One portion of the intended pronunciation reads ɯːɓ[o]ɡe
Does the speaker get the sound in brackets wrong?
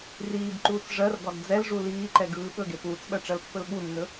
yes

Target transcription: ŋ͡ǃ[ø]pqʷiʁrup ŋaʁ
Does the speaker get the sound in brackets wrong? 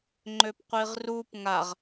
no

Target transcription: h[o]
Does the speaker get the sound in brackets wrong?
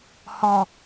yes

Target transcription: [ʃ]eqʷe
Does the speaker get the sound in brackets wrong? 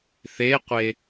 yes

